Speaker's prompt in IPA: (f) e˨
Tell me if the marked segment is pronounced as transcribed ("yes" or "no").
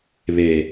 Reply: no